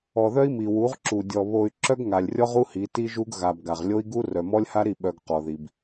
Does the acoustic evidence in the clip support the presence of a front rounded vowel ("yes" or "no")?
yes